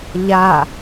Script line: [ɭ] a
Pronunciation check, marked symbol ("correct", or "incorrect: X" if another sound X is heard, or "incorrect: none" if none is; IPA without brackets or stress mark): incorrect: ʎ